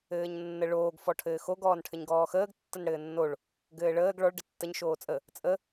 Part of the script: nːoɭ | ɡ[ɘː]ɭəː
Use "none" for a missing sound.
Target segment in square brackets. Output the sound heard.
ɘː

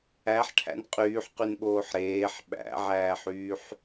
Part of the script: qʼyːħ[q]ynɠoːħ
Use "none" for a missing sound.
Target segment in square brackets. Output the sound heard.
q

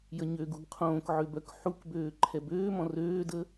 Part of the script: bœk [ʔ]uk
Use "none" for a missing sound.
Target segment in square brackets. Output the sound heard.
ħ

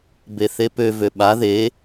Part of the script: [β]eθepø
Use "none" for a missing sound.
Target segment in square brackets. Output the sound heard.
b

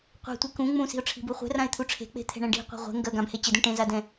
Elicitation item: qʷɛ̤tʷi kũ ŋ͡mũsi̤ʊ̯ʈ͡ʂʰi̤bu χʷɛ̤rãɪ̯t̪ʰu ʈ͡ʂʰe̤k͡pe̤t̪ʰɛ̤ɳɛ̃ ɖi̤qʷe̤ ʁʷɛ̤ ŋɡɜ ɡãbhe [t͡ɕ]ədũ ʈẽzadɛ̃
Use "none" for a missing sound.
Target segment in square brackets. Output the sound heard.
t͡ɕ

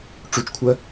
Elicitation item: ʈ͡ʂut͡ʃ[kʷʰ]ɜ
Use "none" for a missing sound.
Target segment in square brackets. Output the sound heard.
kʷʰ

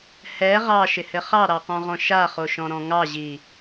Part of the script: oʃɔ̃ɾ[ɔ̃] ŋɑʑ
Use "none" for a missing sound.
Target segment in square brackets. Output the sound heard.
ɔ̃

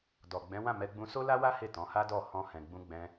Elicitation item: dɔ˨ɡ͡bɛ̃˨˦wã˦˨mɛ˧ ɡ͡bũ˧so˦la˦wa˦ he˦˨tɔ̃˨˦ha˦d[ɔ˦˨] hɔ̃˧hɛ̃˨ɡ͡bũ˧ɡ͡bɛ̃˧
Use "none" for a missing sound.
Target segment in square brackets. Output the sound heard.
ɔ˦˨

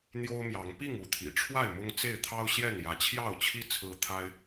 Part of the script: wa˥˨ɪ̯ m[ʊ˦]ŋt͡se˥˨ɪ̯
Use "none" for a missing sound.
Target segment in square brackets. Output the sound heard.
ʊ˦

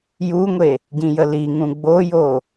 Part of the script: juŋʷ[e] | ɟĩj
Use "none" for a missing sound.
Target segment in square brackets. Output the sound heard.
e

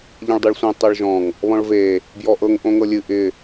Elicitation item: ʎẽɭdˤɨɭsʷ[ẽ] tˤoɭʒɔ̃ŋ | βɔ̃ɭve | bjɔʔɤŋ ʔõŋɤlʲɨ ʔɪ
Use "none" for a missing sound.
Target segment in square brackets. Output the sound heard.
ẽ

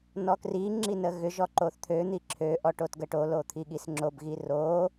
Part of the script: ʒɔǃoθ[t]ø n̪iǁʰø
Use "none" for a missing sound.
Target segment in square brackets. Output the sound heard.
t̪ʰ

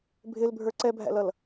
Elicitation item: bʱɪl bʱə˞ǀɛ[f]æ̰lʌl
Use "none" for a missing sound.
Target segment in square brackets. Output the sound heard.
bʱ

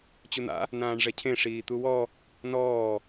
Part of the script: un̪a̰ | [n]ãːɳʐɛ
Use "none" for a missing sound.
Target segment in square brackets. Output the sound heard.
n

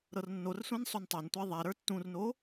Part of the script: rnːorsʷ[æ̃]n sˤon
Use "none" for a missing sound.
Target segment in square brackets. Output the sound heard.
æ̃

